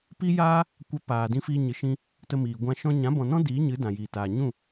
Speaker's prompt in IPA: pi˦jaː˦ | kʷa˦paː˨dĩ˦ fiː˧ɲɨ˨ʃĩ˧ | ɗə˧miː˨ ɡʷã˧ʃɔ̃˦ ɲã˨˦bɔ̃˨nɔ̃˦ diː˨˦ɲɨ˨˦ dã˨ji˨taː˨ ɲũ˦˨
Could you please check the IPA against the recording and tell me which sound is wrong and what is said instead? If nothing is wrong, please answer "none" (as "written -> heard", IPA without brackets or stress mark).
ɗ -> t